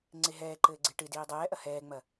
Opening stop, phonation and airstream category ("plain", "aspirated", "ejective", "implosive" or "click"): click